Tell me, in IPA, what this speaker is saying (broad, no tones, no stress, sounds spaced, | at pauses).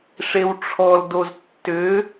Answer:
ʂ e w ʈ͡ʂʰ ɔ l d o z tː ʏ